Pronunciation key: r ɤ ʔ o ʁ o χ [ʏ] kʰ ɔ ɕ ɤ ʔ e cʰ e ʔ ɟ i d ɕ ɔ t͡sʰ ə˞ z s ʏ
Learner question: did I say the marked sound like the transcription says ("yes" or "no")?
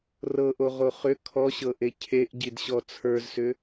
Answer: yes